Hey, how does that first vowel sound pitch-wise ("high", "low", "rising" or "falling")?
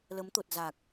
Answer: rising